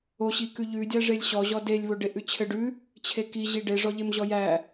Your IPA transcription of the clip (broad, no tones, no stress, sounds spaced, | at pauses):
o ɕ i k ʉ ʎ ʉ dʲ æ ʐ e lʲ ɕ ɔ ʑ ɔ d e lʲ β o ɖ e ʔ ʉ t͡ɕʰ ɘ ɖ ʉ | t͡ɕʰ e k i ʑ i ɖ e ʐ ɔ ʎ e m ʑ ɔ j æ